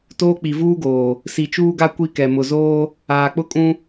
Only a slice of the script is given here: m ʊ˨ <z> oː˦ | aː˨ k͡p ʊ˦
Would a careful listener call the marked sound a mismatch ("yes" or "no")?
no